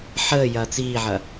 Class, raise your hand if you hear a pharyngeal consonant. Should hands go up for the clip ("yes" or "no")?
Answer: yes